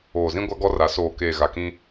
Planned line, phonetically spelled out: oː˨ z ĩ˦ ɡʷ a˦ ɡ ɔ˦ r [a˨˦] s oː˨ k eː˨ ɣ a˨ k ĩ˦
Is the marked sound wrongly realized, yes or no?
no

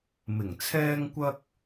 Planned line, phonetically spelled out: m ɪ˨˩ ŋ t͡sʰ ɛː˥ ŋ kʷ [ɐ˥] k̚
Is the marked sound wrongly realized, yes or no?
no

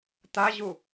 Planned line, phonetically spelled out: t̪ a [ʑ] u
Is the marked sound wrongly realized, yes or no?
no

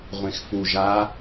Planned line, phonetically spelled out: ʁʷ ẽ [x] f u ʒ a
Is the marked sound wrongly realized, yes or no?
no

